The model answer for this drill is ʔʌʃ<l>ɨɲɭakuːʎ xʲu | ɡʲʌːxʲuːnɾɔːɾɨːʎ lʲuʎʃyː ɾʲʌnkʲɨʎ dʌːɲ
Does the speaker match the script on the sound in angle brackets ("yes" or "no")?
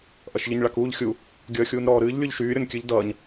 no